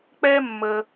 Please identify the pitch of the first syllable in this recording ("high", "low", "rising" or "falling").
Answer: high